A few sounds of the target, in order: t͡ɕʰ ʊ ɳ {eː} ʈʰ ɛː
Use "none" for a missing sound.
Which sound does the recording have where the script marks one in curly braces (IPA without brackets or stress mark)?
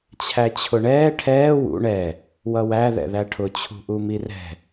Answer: ɛː